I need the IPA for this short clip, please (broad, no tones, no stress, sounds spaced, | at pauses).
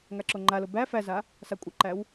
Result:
ŋ a ǁ o ŋ͡ǃ a l o b æ f æ z a | s a kʷʼ ə ǃ æ w